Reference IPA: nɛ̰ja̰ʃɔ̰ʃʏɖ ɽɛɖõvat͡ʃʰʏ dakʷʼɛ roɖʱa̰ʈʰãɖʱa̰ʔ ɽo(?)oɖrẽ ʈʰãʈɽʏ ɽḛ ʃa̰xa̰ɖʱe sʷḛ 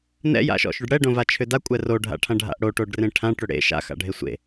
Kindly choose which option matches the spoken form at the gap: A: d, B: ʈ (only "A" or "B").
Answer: B